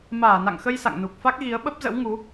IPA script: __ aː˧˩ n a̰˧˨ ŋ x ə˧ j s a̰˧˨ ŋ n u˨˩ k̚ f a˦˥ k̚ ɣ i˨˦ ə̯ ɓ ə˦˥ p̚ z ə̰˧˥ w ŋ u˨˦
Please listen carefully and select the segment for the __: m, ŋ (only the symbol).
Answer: m